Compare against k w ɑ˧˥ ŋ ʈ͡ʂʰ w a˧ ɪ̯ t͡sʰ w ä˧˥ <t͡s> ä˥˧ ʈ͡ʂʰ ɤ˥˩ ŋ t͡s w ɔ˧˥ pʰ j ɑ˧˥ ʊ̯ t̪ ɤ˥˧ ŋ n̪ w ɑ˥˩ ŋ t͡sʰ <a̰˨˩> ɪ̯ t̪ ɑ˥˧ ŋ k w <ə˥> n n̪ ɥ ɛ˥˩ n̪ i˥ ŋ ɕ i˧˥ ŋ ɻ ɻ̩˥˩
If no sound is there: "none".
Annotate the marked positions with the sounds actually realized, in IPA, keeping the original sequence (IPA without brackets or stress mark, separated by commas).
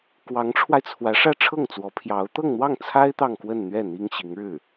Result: ʂ, a˥, ə˥˧